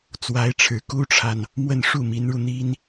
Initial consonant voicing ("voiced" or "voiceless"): voiceless